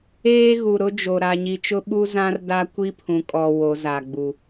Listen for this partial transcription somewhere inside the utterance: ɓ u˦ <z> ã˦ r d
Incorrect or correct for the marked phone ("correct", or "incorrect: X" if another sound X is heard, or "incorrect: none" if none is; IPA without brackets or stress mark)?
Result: correct